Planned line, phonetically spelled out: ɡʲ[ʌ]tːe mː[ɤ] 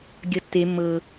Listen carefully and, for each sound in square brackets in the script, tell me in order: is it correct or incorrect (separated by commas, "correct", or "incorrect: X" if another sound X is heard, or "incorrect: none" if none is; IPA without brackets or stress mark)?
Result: correct, correct